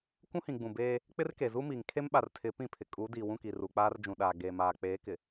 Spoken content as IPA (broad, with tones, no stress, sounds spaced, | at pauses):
kʷ ũ˦ h ĩ˨ ɡ͡b ũ˨ b eː˦ | k͡p ɪ˦ r k e˨ z u˦ m iː˨ ŋ kʰ e˦ m ɓ a˨ r tʰ ɪ˨˦ p ĩ˦˨ pʰ ɪ˨ kʼ u˨˦ d iː˨ w ũ˦˨ k i˨ r u˨ k͡p aː˦ r d͡ʒ ũ˨ ɗ aː˨ ɡ eː˨ m aː˨ k͡p eː˨˦ k ɪ˨